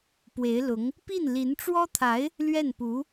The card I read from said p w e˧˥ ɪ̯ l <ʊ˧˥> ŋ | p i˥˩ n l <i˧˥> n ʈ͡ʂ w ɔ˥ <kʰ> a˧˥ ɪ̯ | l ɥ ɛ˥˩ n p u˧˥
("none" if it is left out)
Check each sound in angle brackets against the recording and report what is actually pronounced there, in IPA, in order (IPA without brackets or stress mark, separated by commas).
ʊ˧˥, i˧˥, t̪ʰ